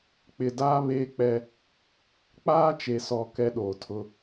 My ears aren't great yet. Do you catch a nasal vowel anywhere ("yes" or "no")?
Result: no